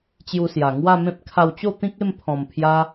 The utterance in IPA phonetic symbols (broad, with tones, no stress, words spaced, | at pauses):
t͡ɕju˧sja˨˩ ŋwa˥˧mẽ˦p̚ kʰa˧wt͡ɕo˥˧ t̪ĩ˦k̚ e˥˧mpʰɔ̃˨˩mpʰja˧